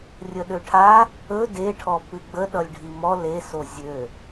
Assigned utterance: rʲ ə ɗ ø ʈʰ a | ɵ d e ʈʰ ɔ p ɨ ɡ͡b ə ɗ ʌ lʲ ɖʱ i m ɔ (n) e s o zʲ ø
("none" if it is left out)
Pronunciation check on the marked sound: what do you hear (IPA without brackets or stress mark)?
l